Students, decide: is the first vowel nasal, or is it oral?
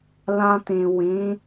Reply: nasal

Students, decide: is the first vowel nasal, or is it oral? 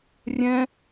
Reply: nasal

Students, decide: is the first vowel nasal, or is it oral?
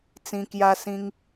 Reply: nasal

